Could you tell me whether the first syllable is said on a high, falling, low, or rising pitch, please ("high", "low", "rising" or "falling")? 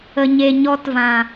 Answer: low